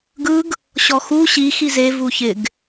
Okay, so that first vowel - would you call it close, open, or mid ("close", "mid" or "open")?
close